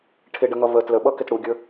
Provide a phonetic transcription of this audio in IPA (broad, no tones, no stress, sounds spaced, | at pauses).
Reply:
ʈʰ ɪ ɖ ə ŋ ʌ v ə t l ə ɓ ʌ k ɪ t ɽ u ɡʲ ə˞